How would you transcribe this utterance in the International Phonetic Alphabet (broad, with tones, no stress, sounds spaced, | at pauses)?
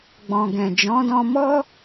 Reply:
ɡ͡b ɔ̃˨ ɡ ɛ̃˨ d͡ʒ ɔ̃˨˦ d ɔ̃˧ m ɔ˦